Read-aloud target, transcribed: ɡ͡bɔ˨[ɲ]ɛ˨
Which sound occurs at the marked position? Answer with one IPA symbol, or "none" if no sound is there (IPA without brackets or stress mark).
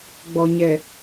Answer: ɲ